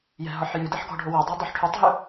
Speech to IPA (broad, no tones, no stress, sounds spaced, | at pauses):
j ɛ̤ ɦ ɒ ħ j ʉ d ɛ ħ ɡ ɔ̤ ɖʱ o w o dˤ e dˤ ɵ ħ ʈʰ ʉ tˤ ɦ ʉ